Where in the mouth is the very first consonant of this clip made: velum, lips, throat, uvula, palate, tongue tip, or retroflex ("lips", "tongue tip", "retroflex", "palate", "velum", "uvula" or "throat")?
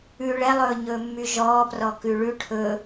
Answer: retroflex